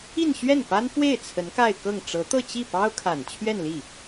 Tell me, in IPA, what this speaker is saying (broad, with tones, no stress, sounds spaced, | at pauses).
i˥˧ n ɕ ɥ ɛ˥˩ n p a˥ n f w e˥˩ ɪ̯ t͡sʰ ə˧˥ n k a˥˧ ɪ̯ k ɤ˥˩ ŋ ʈ͡ʂ ɤ˧˥ t̪ ɤ˥˧ t͡ɕ i˥˩ p ɑ˥ ʊ̯ kʰ a˨˩ n t͡ɕʰ ɥ ɛ˥˧ n l i˥˩